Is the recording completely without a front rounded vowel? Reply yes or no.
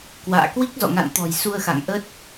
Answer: yes